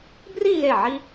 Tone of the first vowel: falling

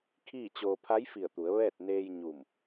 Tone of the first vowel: falling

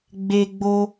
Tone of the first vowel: high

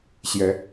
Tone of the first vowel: rising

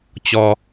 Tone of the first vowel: low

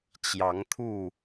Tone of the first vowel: rising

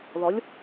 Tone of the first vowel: rising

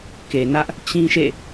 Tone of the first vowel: low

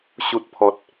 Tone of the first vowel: low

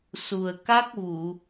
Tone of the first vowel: low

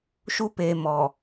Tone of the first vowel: high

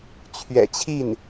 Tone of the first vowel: low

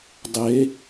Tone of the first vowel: rising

